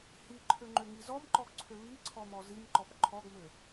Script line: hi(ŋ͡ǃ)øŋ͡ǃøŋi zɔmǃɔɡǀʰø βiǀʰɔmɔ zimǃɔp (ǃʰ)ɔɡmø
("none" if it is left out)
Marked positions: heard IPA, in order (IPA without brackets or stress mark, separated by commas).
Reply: ǃʰ, ǃʰ